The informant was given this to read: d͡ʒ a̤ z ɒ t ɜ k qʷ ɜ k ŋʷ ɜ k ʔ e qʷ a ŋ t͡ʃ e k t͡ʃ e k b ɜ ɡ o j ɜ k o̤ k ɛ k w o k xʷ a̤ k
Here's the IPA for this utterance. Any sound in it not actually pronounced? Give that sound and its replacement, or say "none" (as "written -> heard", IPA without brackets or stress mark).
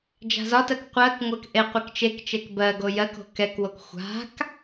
ŋ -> k